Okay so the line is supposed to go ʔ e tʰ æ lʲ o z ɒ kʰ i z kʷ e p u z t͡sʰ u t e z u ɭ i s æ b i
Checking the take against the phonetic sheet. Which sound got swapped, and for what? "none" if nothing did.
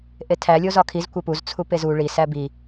t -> p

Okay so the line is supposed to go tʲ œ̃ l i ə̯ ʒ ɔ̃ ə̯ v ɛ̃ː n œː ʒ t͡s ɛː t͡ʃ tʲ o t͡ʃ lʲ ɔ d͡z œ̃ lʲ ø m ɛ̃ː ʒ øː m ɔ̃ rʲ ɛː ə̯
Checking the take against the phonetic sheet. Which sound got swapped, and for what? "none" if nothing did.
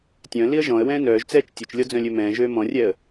v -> w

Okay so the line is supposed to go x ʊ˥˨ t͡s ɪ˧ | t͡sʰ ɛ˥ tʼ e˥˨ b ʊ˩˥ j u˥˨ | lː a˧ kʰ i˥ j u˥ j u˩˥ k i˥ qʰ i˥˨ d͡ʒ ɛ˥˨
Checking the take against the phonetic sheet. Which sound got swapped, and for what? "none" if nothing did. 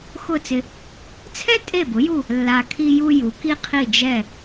none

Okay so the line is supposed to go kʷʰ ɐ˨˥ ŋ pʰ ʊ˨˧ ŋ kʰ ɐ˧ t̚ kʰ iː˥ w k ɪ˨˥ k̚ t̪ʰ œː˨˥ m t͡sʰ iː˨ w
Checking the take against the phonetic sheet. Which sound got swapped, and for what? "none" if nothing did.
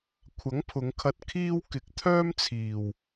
œː˨˥ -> œː˥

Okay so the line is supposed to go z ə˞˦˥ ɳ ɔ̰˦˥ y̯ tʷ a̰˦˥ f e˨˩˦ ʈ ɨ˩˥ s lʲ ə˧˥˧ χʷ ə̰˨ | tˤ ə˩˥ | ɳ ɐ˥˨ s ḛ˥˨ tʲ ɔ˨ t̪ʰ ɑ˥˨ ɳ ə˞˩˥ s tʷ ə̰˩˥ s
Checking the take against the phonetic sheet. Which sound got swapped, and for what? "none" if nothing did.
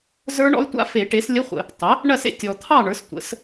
ɨ˩˥ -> e˩˥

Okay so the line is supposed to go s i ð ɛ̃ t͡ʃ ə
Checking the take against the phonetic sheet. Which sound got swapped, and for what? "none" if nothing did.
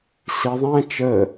ð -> ðˤ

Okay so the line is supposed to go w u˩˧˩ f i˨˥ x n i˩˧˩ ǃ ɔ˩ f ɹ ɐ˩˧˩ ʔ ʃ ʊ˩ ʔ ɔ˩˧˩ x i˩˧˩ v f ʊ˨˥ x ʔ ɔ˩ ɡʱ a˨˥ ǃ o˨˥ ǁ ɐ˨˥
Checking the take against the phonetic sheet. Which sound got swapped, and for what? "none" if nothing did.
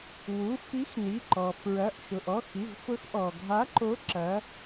none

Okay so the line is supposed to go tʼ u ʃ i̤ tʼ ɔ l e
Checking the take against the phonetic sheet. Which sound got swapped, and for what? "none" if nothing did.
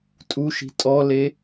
none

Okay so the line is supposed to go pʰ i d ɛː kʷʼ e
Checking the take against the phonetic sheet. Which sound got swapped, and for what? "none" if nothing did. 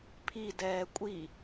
e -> i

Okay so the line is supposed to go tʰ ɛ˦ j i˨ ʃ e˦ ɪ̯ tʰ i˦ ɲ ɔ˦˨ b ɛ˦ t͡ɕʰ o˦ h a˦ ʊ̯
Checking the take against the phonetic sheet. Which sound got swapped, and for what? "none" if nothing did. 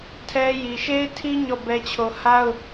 none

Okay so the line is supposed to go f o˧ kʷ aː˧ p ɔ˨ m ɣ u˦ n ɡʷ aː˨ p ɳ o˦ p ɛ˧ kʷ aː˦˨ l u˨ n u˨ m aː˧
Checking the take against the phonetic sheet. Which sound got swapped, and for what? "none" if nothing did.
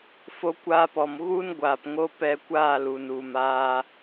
ɳ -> ŋ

